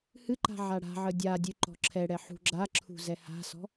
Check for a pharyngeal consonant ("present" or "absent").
present